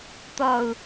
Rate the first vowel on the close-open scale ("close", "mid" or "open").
mid